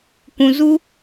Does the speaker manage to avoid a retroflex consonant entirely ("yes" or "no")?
yes